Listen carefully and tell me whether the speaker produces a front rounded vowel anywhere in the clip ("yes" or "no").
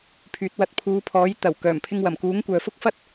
yes